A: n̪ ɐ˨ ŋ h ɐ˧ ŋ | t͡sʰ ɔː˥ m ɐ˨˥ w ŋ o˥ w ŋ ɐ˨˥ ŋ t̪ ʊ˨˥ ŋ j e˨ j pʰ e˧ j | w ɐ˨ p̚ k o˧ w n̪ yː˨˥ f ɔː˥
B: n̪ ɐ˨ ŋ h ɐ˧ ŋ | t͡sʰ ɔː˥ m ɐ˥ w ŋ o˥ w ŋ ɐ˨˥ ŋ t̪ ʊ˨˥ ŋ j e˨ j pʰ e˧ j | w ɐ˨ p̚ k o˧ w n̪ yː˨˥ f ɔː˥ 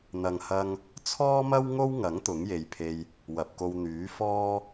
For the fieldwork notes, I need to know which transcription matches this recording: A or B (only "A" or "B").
B